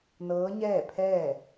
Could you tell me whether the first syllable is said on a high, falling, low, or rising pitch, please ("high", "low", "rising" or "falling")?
rising